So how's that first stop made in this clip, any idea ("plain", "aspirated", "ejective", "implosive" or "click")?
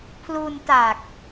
aspirated